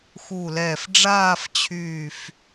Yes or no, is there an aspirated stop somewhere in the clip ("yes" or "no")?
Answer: yes